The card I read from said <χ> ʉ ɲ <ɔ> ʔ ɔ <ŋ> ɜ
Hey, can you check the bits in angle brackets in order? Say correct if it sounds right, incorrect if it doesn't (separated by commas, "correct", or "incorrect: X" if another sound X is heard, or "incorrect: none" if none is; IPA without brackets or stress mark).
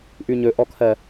incorrect: ʔ, incorrect: ɵ, incorrect: kʰ